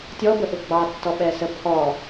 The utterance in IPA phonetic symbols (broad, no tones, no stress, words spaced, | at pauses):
tʲɔbəʔʊ ɡ͡bɑtːɔɓɛsə pʰɔ